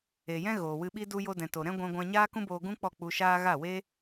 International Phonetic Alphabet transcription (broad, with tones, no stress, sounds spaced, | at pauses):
e˨ j ɛ̃˦ ɣ oː˨ w ɨ˧ ɓ i˦ d u˧ j o˧ d ɛ̃˨ t o˨ ɾ ɛ̃˦ ɡʷ ɛ̃˧ ɡʷ ã˧ ɲ aː˦ k ũ˦ b oː˧ ɡ ũ˦ k͡p ɔ˦˨ k͡p u˧ ʃ aː˦ ɣ a˦˨ w e˦